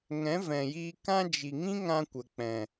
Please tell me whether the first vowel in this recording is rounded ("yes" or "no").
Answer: no